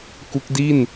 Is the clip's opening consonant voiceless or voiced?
voiceless